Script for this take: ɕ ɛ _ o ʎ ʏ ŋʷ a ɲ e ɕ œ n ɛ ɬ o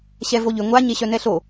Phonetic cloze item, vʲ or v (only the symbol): v